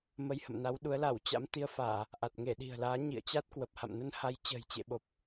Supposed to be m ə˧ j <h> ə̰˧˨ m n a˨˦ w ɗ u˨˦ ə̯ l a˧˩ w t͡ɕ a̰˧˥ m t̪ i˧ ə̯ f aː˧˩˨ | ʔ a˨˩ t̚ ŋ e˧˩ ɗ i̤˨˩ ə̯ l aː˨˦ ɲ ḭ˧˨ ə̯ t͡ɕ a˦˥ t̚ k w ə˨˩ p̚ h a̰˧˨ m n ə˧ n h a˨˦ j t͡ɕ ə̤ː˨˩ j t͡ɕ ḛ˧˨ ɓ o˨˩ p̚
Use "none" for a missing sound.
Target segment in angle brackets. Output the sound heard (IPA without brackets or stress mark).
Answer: h